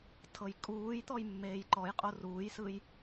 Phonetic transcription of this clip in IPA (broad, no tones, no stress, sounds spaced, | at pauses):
tʰ ɤ j kʼ uː j t̪ ɔ j mː eː j ǃ ɔ j qʼ o r uː j s ɯ j